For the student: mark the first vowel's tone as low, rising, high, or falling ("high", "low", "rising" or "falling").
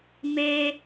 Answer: high